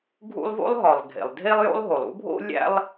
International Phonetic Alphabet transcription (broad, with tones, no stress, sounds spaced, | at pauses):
ɡʱ ṵ˥ lˠ v o̰˥ lˠ ɦ ɒ˩ lˠ ɡʱ ḛ˩ lˠ dʱ e˥ lˠ j o̰˥ lˠ ɦ o˩ lˠ ṵ˥ bʱ o̰˥ lʲ æ̰˥ lˠ